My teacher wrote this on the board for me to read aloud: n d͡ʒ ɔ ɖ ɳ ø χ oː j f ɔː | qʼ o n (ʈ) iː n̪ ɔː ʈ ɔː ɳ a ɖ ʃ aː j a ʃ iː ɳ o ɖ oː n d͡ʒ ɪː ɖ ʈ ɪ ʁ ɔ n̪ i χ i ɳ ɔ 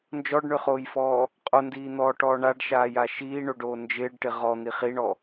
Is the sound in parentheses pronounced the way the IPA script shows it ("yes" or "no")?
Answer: no